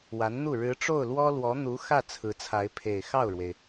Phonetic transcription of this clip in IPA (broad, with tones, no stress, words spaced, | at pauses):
wa˧˥nn̪u˥˩ ɻɻ̩˧˥ʈ͡ʂo˥˩ʊ̯ lwɔ˥lwɔ˧˥ n̪u˧˥ xä˥˩ t͡sʰɹ̩˧˥t͡sʰa˧˥ɪ̯pʰe˨˩ɪ̯ xɑ˥˩ʊ̯ɻwe˩ɪ̯